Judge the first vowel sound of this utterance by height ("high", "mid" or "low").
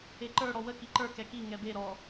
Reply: mid